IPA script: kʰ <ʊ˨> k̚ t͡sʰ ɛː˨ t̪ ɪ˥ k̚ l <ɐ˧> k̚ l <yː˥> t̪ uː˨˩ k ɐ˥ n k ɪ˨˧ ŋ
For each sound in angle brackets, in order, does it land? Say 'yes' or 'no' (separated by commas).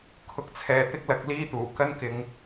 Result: yes, yes, no